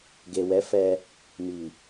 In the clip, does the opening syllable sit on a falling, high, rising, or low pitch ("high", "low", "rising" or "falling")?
low